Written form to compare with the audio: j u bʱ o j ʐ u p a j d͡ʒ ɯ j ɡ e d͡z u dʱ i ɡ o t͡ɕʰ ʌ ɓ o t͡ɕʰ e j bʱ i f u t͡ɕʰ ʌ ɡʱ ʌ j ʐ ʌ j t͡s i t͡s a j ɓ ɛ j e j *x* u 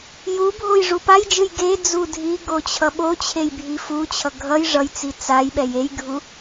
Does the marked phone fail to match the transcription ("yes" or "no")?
yes